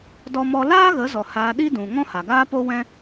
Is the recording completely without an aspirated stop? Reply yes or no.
yes